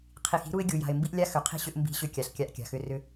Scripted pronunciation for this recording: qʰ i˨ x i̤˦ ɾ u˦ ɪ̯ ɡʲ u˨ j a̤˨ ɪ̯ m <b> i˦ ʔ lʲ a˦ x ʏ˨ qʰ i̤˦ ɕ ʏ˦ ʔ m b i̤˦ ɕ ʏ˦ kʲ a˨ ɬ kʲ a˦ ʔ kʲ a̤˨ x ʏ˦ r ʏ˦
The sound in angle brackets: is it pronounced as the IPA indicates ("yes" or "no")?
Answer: yes